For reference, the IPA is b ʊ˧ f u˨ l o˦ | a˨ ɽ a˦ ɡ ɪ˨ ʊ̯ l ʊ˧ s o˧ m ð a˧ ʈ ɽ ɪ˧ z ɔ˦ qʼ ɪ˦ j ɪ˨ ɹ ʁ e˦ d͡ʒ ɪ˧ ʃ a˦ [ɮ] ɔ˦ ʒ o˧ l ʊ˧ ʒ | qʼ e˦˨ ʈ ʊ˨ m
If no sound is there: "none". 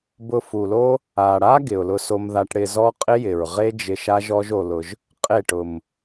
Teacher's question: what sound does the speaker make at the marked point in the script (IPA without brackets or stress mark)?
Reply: ʒ